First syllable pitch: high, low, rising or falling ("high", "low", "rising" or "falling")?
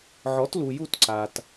rising